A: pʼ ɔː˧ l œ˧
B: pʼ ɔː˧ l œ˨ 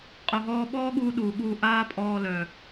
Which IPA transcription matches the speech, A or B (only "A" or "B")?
B